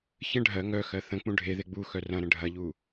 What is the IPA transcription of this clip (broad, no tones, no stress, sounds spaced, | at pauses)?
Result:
ç ə̃ ɖʱ ɜ ŋ œ x ɜ θ ə̃ k͡p ũ ɖʱ e ð e ɡ͡b u x œ r ɐ̃ ɾ ə̃ ɖʱ ɐ ʎ u